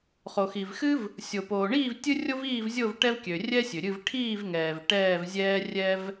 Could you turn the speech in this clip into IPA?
χo˩xi˩vxɨ˥v | sʲo˩poː˩ɳiː˥˨v tʲɨ˥rʲo˥viː˥˨vzʲo˥˨v ʈɛ˥vkʲø˩ rʲɛ˥sʲø˩ɾʲɨ˥˨v ʈʰiː˥˨vŋɛː˩v ʈɛː˥˨vzʲɛː˥rʲɛ˥v

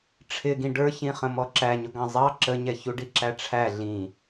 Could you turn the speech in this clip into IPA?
ʈ͡ʂʰɪɡĩ ɖə˞çĩχə̃ mɔǁæɲʊɡɑ̃ zˤɑ ǁəɲɛ çuɖiǁæʈ͡ʂʰæ ɮĩ

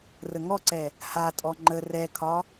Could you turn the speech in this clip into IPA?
rəŋɔǀɛ | hatʼɔ ŋ͡ǃə rɛkʰɒ

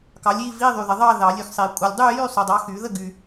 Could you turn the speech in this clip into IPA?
kɑ˨˥lʲi˧˥˧ vi˧˥˧ðˤy˨ðə˨ðˤɑ˥˧ ðɑ˨˩˦lʲy˨xsˤi˨˩˦ kʷʼə˨lʲdˤy˥˧jy˥˧ sˤy˨dˤɑ˨˥xy˨˩˦ ðə˥˧ɡy˨

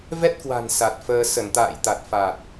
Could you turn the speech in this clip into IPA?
vɛ˦˥t̚kwa̤˨˩n sa˨˩t̚fəː˧ sə˧˩nt̪a̰ː˧˨jt̪a˨˩t̚ fa˨˩t̚

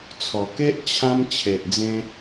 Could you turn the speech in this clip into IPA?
t͡sʰɔ˨˩ke˦ʔ t͡ɕʰã˧m t͡ɕʰe˨ʔd͡zẽ˧

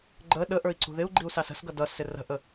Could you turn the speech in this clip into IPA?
ɡ͡ǃə ɗəʔə˞i̯ ǀṳðɪu̯ ɡ͡ǃiu̯sɑsə̤sɡʌ dʌsɪ rə̤ʔə

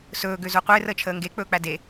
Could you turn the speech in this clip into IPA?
sɵː ɡøzoqʷeːr əːt͡ʃʰəːŋɡe k͡pɵːk͡pæde

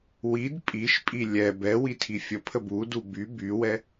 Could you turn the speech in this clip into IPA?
wid pʼiʃpʼi lʲɛ bɛ witʰifʲəpʰə budu by bywɛ

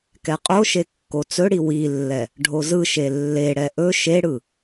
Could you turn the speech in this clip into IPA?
kɛqʼoʃe kːot͡sɵɽi wilːɛ | ɖʱozɯʃe lːeɽɛ ʔɵ ʃeɽɯ

